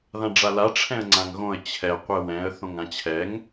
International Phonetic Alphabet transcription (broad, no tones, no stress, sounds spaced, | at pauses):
ð ã ɖ͡ʐ a l a ʈ͡ʂʰ ɛ̃ ə̯ ŋ͡ǀ ã ŋ ɣ õ ə̯ t͡ɕʰ ɛ qʷ ɛ w ɛ̃ ə̯ θ õ ŋ ã t͡ɕʰ ɛ ŋ